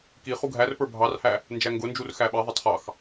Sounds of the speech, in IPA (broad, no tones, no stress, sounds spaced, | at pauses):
k i χ u ɡʱ æ r p ə˞ bʱ ɑ r h æ | n d͡ʒ æ ŋ ɡ ʊ n d͡ʒ u r x æ ɓ ɛ ðˤ ʌ tˤ χ ɑ x